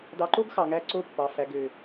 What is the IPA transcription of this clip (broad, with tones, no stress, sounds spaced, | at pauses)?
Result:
d ɑ˨ ǃ o˦ ɡ x ɑ˨ ŋ æ˦ ǀ o˦ pː ɑ˨ f æ˨ ɡ ø˨